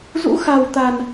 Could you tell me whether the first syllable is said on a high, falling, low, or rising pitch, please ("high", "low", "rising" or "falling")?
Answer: rising